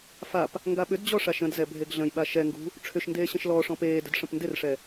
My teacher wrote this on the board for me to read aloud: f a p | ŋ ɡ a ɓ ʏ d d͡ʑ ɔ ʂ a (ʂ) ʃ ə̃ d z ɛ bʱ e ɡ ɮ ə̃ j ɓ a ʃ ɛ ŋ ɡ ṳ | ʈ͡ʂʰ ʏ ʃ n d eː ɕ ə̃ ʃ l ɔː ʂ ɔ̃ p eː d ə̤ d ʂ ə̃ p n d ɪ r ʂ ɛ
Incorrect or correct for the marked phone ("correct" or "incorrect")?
incorrect